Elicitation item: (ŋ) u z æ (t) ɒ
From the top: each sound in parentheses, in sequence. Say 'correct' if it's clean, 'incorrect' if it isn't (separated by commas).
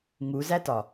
correct, correct